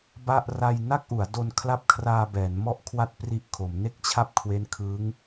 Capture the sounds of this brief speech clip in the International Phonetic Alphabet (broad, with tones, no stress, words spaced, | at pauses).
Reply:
ba˥˩ʔ ra˧jna˥˩k̚ ʔu˩˦a̯do˧n kʰla˥˩p̚kʰraː˧bɛː˩˦n mɔ˥˩ʔkʰwa˥˩t̚pri˦˥ʔkʰo˩˦m ne˥˩k̚t͡ɕʰa˥˩p̚kʰwe˦˥n kʰɯː˦˥ŋ